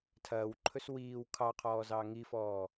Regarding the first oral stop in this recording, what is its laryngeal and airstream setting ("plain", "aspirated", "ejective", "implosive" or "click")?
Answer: aspirated